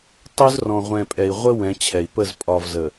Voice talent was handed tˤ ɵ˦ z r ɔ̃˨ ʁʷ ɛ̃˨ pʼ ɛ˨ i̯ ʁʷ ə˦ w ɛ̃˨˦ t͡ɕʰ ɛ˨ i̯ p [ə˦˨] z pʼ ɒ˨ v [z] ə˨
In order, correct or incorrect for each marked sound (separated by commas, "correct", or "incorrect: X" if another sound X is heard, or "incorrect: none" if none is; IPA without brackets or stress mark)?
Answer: correct, correct